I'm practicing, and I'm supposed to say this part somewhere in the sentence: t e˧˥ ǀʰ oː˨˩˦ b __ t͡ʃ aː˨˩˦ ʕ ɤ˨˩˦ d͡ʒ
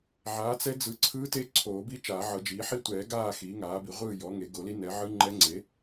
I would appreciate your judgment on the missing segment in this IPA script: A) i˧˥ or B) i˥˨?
A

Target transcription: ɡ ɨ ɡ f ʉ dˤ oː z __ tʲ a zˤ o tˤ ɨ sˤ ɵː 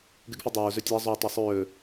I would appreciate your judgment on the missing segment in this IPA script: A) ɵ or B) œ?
A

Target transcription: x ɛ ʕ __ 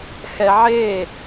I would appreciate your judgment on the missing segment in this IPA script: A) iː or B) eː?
B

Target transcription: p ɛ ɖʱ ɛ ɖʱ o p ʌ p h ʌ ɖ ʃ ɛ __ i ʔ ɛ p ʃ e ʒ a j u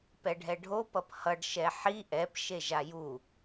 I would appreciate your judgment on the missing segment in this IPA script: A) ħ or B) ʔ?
A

